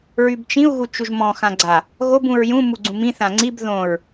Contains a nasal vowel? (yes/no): yes